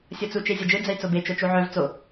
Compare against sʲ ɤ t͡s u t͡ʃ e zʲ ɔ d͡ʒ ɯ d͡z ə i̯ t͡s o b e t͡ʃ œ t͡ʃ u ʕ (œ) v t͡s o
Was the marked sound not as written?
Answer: no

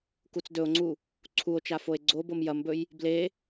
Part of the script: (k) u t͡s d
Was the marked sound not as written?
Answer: no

